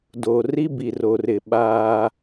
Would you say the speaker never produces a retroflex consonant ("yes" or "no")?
yes